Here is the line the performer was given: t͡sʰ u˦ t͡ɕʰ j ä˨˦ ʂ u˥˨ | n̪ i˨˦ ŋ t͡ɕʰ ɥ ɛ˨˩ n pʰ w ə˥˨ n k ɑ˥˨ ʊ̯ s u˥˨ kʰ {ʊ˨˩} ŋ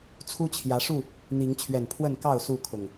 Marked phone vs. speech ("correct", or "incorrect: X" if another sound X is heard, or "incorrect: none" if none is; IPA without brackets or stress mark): correct